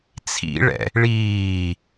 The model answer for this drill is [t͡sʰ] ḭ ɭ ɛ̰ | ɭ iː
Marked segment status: correct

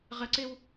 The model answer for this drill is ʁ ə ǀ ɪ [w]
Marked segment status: correct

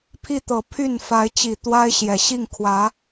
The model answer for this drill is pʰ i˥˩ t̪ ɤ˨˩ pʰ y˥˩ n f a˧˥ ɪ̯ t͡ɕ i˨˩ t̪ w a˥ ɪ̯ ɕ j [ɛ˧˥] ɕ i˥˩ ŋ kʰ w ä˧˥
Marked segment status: incorrect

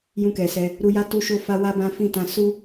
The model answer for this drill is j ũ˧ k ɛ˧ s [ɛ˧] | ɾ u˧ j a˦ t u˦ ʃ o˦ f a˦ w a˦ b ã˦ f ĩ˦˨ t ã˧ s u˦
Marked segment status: correct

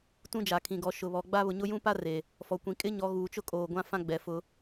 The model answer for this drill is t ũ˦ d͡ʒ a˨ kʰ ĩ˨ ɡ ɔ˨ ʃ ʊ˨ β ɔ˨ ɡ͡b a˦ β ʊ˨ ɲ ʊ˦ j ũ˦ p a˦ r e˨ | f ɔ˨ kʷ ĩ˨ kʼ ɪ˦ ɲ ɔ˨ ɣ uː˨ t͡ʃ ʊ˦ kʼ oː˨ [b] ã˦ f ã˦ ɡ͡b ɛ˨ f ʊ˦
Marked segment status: incorrect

